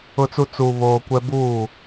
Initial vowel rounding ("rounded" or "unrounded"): rounded